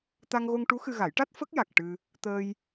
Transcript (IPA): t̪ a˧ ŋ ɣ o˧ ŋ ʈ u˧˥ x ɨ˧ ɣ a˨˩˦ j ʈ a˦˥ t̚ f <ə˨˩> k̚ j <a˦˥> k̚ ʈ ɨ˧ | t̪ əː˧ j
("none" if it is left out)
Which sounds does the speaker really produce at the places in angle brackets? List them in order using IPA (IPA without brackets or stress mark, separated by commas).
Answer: ə˦˥, a˨˩